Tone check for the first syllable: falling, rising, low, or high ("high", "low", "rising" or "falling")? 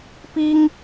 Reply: high